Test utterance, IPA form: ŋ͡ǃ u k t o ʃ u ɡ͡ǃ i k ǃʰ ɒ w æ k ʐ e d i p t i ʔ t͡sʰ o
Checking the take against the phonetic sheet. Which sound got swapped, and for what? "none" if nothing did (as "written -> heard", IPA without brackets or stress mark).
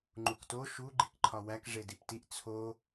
none